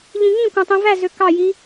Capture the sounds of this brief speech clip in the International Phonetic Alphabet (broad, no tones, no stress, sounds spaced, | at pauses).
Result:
ʎ ĩ ŋ ĩ kʷ æ̃ tˤ ĩ v æ z ø k ɑ j i